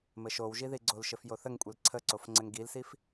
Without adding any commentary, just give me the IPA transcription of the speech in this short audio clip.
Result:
m ɘ ʃ o w ʒ i ð i ɡ͡ǀ o l ʃ ɘ f j o θ ə ŋ kʷʼ ɛ l ǀʰ ə ǀ o f ŋ͡ǀ ɘ ŋ ɡ i l s i f

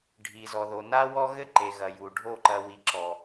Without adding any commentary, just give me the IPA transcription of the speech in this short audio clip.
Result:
ɖʱ i˨ z ɔ˨ ð o˨ n a˦ w ɔ˦ ɣ ɘ˦ ǃ e˨ ɣ ɐ˨ j u˨ ɖʱ o˦˨ ǃ ɐ˨ w i˨ ǁ ɔ˨

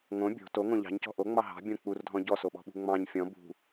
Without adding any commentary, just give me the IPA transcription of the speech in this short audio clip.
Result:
ŋ õ bʲ o̤ t o ŋ õ ʎ ɑ̤ ɲ c ɔ̤ ʔ o ŋ͡m ɑ ɦ ɑ̤ bʲ õ k͡p u r dʱ ɔ̃ ɟ ɔ s o ɓ ɔ̤ ɓ ṳ ŋ͡m ɑ̃ ɲ fʲ ɔ̃ b ṳ

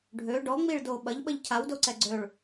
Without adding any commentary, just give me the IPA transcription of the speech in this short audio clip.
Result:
ɖʱ ø ɖ ɔ ŋ͡m i ɭ d o ɓ ɐ ʎ ɓ ə ʎ cʰ a w d o ǀ ɛ ɡ͡ǀ ø ɭ

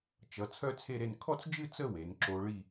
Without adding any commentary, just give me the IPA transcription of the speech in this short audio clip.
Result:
t͡ʃ ʌ˩˧ t͡sʰ œ˥ t͡sʰ e˥˧ ɾ e˥˧ n kʰ ɔ˥˧ t͡s d͡ʒ ɨ˥˧ t͡s ə˥˧ w e˩˧ n ǁ o˧ ɭ i˥˧

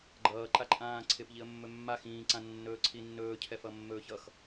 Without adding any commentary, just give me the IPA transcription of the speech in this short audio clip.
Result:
ɡ͡ǃ ʌː ǃ a ǃʼ ãː ǀʰ ɪ p ʎ i ə̯ mː ɵ mː a x ĩː ǀ ã nː ɵː ǀʰ i nː ɵː cʰ ɛ f ʌ mː ɵː ç ʌ x

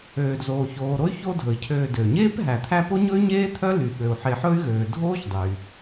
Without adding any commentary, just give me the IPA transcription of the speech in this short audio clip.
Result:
øː˩ d z oː˩ ç oː˩ ɾ o˦ y̯ ç o˦ dʱ ɵ˩ i̯ cʰ øː˨ d ø˩ ɲ eː˥ p ɦ æ˩ t̪ʰ æ˦ p o˥ ɲ ɵ˥ y̯ ɲ eː˥ t̪ʰ œ˥ l y˩ ɓ ø˩ u̯ ħ e˨ ħ ɵ˦ y̯ ɣ øː˩ dʱ oː˥ ç dˤ y˩

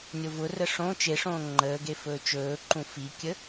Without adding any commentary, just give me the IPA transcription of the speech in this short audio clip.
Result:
nʲ o v ʊ r ə ʂ õ t͡ʃ e ʂ õː ŋ͡ǃ əː ɡ e f ɵː t͡ʃ ɵː ǃ ũ f i kʲ ə

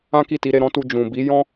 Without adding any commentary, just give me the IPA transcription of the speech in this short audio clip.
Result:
ã˦ k i˦˨ t i˨˦ ɾ e˧ ɾ ɔ̃˦ t u˧ d͡ʒ ũ˨ b i˨˦ j ɔ̃˦

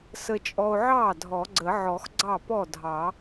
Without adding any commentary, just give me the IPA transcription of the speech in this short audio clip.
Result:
s ə˧ t͡ʃʼ ɔ˧ o̯ ʕ ɑ˥˩ dʱ ɔ˨˩˦ ɡ͡ǀ ə˨˩˦ ʕ ɔ˨˩˦ x ɡ͡ǀ ɑ˥˩ p ɔ˥˩ dʱ ɑ˨˩˦

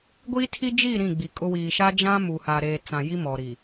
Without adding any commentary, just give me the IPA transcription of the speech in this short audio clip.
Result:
ɡʷ i˦ tʰ i˦ d͡ʒ i˦˨ ɾ ĩ˦˨ ɡ͡b i˨ kʼ ʊ˦ w iː˨ ʃ a˦ d͡ʒ ã˦ m u˨ h a˨ ɾ eː˨ t͡s ã˨ j i˦ m ɔ˨ ɾ i˨

